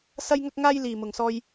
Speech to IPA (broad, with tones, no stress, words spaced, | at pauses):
sɐ˥jŋɐ˥k̚ŋaː˥j liː˨mʊ˨ŋsɔː˧j